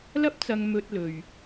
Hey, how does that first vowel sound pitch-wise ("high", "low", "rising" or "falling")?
high